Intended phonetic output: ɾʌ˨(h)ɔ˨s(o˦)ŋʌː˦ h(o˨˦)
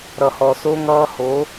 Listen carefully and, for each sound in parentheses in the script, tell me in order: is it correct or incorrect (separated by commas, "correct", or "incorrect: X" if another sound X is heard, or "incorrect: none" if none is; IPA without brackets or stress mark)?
correct, correct, correct